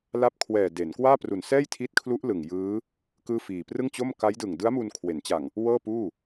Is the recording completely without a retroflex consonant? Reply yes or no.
yes